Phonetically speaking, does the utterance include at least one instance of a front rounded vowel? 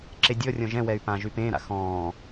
yes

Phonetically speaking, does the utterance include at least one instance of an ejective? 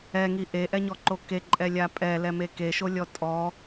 yes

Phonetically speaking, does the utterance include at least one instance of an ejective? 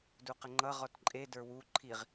yes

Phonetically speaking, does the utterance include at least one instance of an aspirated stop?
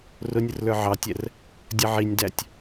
no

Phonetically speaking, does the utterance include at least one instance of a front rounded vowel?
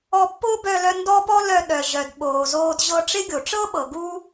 yes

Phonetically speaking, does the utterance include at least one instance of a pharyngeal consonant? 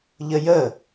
no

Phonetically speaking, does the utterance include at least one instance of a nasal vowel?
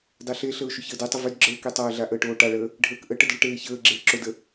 no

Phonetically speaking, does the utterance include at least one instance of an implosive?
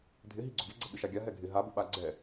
yes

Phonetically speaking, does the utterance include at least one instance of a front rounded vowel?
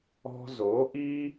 no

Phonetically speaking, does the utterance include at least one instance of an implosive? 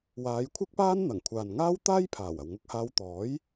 no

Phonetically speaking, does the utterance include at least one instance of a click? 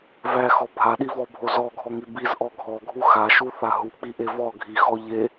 no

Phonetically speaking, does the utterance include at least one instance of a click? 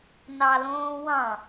no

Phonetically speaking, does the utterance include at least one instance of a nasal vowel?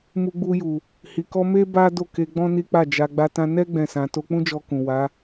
yes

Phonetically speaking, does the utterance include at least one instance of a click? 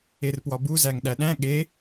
no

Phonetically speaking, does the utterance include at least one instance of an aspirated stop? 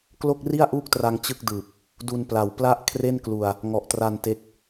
yes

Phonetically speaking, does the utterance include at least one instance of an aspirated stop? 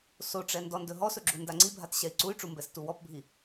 no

